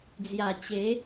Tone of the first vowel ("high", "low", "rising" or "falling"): low